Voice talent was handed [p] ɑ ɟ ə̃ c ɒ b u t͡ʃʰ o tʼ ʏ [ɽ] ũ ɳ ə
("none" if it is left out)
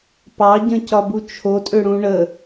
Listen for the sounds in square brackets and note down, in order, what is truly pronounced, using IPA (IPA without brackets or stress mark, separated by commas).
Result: p, ɽ